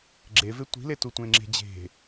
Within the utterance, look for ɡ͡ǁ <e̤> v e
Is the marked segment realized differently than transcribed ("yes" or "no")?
yes